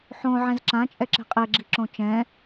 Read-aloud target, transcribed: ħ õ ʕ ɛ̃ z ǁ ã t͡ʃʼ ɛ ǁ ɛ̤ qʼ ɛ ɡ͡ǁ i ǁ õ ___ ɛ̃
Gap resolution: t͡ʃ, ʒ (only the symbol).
t͡ʃ